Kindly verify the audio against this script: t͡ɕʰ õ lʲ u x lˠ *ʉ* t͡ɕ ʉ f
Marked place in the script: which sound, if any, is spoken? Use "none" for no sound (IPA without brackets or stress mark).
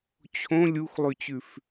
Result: ʉ